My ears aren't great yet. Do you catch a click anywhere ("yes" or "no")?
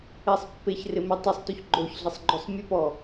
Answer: yes